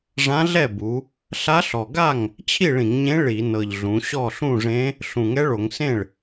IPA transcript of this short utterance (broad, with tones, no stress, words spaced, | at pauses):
ʐã˧˥ɮɛ˥˩bu˩˧ | ɬa˧˥ɬɔ˨˩ɡa˥˩ŋ | t͡ɕʰi˥˩ɭĩ˧˩˧ŋɲẽ˧˥ ɭi˧˩˧nɤ˨˩ʎ ɮũ˩˧ ɕɔ˥˩ɬũ˥˩ʐẽ˧˥ | ɬũ˨˩ŋɛ˧˥ ɭo˧˩˧ŋsẽ˥˩ɭ